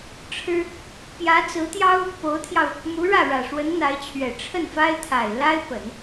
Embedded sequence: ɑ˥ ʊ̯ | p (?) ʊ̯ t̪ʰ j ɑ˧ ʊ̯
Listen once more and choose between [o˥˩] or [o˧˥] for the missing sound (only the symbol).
o˧˥